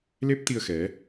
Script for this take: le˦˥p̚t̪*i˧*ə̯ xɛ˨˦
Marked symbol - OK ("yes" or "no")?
yes